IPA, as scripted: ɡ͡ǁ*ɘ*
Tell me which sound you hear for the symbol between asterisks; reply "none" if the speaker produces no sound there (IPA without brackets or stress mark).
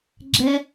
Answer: ɛ